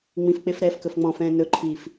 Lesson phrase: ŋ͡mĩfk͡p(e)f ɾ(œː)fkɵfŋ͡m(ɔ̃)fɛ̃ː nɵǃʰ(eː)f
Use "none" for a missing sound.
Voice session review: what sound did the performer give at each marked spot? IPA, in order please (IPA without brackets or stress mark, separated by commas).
e, ɛː, ɔ̃, iː